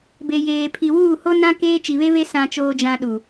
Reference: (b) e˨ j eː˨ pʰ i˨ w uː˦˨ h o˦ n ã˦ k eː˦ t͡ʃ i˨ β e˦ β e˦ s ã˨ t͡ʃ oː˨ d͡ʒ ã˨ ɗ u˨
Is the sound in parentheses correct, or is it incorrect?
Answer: correct